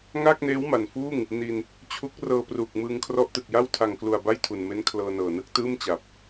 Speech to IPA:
ŋ aː˥˩ k̚ n eː˦˥ w m a˨˩ n f uː˥˩ ŋ | n i˧ n | t͡ɕʰ u˦˥ k̚ r ɤː˧ p r uː˨˩ k̚ m ɯː˧ ŋ kʰ r ɔ˦˥ ʔ t ɯ˨˩ k̚ j a˥˩ w tʰ a˨˩ ŋ k l u˨˩ a̯ b a˥˩ j tʰ u˨˩ n m e˦˥ n kʰ l ɤː˧ n ɤː˨˩ n ɯ˥˩ k̚ t ɯː˥˩ m t͡ɕ a˨˩ p̚

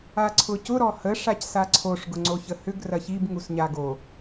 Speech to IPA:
a ǀʰ ʊ c ʊ ɾ ɔ h ə ʂ a c s a ǀʰ o ʂ ɡ ʊ ŋ͡ǀ o ç ə h ʏ ɡ r ɐ ç i b ŋ u s ɲ a ɡ o

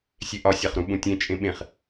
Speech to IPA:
sʲ e ʔ ɒ sʲ a χ ɾ ũ ɓ ũ tʲ ẽ t͡ʃʼ ẽ ɓ ẽ χ

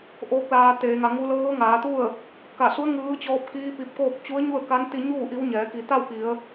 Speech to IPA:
ʔ oː˧˥ k̚ l aː˧ t̪ eː˩˧ ŋ a˩˧ ŋ u˧˥ l ɤː˧˥ ŋ aː˩˧ t̪ u˥˨ ə̯ | k a˧˩ s u˧˥ ə̯ ŋ ɯː˧˥ t͡ɕ ɔː˧˥ p̚ k iː˧˥ p i˧ p̚ k oː˥˨ k̚ t͡ɕ u˧˥ ə̯ ɲ u˥˨ ə̯ k a˧˥ n t̪ i˧ ɲ uː˥˨ ʔ i˧˥ w ɲ ɛː˩˧ k i˩˧ t̪ a˥˨ w k i˩˧ ə̯

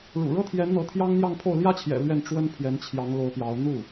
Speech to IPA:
ɻ ṵ˨˩ ɻ ɤ˥ t̪ʰ j ɛ˧˥ n n̪ ɤ˧˥ t̪ʰ j ɑ˥ ŋ n̪ j ɑ˥˧ ŋ pʰ o˥˩ ʊ̯ l j ä˥ t͡ɕʰ j ɛ̰˨˩ l ɥ ɛ˥˩ n ʈ͡ʂ w ə˥ n pʰ j ɛ˧˥ n t͡ɕʰ j ɑ˧˥ ŋ l o˧˥ ʊ̯ p j ɑ˧˥ ʊ̯ n̪ u˥˩

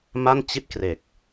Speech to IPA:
m a˥˩ n t͡ɕ i˥˩ t̚ k r e˨˩ k̚

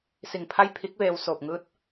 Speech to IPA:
s i˧˩ ŋ pʰ a˥˨ j pʰ i˧˥ k̚ ʋ eː˧ w s oː˧˩ p̚ ŋ ɯː˧˥ t̚

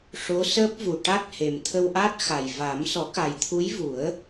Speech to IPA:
ʂ o˧˥ s əː˦˥ p̚ v u˨˩ ʈ a˦˥ t̚ h e˨˩ m t̪ʰ ə˧ w ʔ a˦˥ t̚ x a˨˩ j v a˨˩˦ m s ɔ˨˩˦ k a˨˩ j t̪ʰ u˧˥ j v u˨˩˦ ə̯

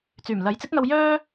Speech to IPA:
t͡s yː˨˩ m l ɐ˨˥ j t͡s ɪ˨˥ k̚ ŋ ɐ˧ w j œː˥

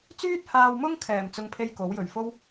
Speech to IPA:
t͡s yː˥ t̚ h aː˧ w m ʊ˥ ŋ kʰ ɛː˨˩ m t͡s ʊ˧ ŋ pʰ e˥ j k o˨˥ w j ɵ˨˩ ɥ f o˥ w

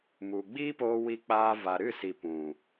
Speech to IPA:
m u˨ ɡ͡b iː˦ p oː˧ w i˧ k͡p aː˧ v a˨ ɾ ɨ˦˨ s i˨ p ũ˨

